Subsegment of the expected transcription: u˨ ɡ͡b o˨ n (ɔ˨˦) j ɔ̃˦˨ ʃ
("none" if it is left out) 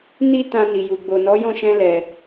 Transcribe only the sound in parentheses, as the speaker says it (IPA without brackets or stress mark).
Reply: ɔ˨˦